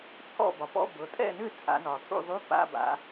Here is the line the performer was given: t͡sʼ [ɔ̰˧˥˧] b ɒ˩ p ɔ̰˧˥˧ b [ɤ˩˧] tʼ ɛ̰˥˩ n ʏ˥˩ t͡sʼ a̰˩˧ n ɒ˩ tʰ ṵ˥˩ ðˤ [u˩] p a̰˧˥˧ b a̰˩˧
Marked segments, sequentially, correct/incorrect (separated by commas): incorrect, correct, incorrect